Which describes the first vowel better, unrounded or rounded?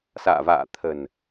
unrounded